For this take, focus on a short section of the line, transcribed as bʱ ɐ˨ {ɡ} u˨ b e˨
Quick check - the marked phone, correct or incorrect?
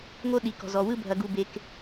correct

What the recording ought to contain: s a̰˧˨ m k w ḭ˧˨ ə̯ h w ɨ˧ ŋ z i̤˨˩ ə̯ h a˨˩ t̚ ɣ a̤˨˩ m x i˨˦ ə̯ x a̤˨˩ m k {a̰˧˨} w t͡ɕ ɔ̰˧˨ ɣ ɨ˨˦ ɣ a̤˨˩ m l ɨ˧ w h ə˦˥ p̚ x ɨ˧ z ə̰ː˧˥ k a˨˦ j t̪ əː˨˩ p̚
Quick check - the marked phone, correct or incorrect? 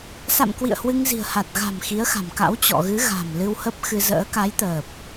incorrect: a̰˧˥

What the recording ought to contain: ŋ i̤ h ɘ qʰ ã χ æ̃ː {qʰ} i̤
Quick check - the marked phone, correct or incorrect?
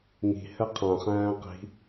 incorrect: q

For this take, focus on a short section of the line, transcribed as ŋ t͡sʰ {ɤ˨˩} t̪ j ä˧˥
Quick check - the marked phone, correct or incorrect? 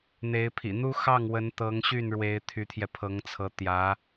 incorrect: ɤ˧˥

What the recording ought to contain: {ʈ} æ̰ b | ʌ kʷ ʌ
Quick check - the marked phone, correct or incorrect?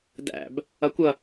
incorrect: d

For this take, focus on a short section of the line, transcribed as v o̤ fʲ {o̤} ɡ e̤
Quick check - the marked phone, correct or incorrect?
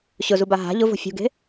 incorrect: ṳ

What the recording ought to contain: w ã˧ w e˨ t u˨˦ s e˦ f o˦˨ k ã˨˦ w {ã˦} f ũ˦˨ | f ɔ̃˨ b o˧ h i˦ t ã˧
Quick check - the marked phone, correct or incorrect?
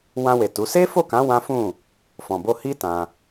correct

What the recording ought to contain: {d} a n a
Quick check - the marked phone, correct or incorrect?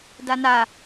correct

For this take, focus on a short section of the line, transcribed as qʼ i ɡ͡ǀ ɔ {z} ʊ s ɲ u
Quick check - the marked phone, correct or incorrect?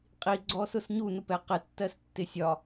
incorrect: s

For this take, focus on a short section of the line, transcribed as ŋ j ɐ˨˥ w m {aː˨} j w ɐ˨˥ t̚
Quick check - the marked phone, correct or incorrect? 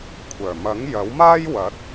incorrect: aː˥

